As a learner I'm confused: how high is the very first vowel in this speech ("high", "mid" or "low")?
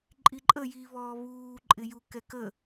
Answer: high